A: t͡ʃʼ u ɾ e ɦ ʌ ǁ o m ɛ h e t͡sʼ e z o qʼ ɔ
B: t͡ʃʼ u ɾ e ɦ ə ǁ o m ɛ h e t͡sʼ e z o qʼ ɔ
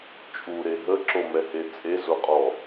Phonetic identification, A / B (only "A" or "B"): B